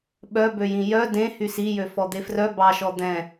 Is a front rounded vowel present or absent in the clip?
present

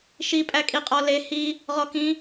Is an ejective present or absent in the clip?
present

